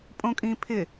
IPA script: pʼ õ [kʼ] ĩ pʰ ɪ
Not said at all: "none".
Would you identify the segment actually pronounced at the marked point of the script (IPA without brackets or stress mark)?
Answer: kʼ